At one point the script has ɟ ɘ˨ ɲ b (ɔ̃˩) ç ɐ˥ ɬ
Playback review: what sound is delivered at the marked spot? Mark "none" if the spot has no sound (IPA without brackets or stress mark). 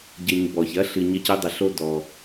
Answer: ɔ˩